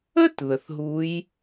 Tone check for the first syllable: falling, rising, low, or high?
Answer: high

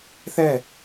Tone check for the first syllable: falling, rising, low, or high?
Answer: falling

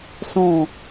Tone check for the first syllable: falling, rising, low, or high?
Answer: falling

